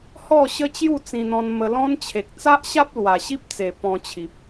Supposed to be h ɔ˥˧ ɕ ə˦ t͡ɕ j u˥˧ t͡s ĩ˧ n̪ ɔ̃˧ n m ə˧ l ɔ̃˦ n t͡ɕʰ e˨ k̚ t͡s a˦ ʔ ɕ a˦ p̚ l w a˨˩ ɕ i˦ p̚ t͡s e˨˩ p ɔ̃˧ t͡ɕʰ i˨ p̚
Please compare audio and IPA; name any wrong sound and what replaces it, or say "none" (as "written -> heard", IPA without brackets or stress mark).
none